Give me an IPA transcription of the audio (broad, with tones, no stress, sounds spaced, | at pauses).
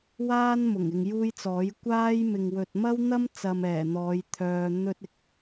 w aː˥ n m ʊ˨˩ ŋ ɪ˨ ŋ j uː˥ j t͡s ɔː˨˥ j kʷ aː˥ j m ɪ˨ ŋ w ɵ˨ t̚ m ɐ˥ w n̪ ɐ˥ m t͡s ɐ˧ m ɛː˨˩ n̪ ɔː˨˧ j t̪ʰ œː˨ n̪ ɵ˥ t̚ ɪ˨ k̚